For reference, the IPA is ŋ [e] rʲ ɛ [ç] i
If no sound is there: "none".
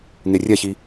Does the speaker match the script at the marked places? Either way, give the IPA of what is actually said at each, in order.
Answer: e, ç

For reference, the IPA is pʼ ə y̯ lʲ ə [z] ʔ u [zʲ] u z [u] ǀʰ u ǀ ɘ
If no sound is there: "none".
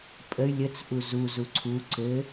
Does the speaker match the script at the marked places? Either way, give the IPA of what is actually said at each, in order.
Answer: t͡s, z, u

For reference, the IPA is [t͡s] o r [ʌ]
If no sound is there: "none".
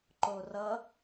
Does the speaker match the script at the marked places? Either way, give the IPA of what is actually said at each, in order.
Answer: ǃ, ʌ

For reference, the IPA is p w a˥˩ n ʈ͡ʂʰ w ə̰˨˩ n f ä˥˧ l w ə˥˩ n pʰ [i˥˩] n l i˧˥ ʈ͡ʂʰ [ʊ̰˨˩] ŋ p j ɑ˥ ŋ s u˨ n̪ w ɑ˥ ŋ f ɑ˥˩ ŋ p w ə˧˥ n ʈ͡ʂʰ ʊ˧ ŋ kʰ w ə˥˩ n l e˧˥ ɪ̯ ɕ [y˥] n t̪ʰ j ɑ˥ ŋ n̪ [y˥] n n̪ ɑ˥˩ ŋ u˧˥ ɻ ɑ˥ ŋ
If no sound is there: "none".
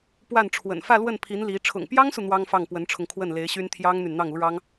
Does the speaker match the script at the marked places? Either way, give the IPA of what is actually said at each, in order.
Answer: i˧˥, ʊ̰˨˩, y˥, y˨

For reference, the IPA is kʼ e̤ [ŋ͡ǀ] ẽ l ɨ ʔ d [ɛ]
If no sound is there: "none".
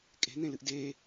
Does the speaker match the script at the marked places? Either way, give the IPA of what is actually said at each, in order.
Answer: n̪, e

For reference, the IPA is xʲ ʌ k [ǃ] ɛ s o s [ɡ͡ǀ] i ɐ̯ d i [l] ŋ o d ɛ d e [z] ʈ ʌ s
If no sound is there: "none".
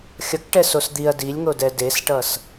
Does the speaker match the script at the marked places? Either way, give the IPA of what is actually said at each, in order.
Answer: ʈ, d̪, lʲ, s

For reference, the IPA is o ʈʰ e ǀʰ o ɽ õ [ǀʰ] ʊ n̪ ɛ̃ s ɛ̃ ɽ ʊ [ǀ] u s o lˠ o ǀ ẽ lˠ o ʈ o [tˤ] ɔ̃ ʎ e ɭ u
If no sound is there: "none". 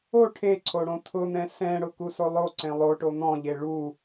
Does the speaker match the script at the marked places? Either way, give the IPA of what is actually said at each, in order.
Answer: t̪ʰ, k, n̪

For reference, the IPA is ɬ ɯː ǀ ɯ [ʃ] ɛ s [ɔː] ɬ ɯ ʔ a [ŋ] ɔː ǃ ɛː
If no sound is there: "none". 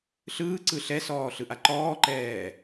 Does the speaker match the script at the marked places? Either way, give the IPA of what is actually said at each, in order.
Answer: ɬ, ɔː, ǃ

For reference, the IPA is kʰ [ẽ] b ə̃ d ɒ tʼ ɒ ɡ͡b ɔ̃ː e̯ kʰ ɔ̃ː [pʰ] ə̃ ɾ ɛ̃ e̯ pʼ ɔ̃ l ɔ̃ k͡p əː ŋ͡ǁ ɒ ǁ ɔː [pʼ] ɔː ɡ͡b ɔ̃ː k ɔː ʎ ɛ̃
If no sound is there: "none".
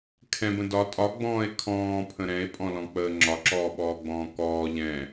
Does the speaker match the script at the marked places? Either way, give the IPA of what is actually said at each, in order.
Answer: ɛ̃, pʰ, ɓ

